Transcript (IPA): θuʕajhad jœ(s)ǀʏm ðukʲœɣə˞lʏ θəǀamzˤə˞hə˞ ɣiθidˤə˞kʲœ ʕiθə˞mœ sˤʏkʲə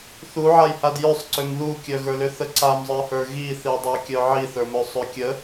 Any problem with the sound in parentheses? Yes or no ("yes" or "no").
yes